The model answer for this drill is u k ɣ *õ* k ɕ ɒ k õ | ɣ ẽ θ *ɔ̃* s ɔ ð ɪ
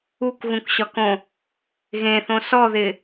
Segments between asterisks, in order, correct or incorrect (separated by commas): incorrect, incorrect